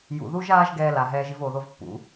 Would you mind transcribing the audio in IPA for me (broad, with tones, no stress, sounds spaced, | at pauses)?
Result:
j ṵ˨ ð u˦ ʒ aː˦ ʒ ɡ ɛː˧ l a˨ ɦ ɛː˧ ʒ i˦ v oː˧ ð o˦ v pː ṵ˨˦